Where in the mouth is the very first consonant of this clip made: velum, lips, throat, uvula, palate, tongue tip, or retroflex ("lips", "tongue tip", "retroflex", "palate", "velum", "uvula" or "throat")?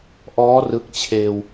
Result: throat